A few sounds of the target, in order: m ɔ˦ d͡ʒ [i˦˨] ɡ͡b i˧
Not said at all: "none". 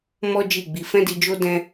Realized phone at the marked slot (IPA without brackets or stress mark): i˦˨